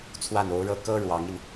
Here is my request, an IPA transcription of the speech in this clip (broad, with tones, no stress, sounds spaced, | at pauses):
t͡sʰ w a˥˩ n o˧˥ ʊ̯ ɻ ɤ˥ k ɤ˥ ɻ w ɑ˧˥ ŋ i˧ n